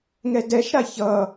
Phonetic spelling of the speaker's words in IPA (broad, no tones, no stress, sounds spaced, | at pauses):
ŋ ɛ d ɛ ʃ ɾ a ç ʌ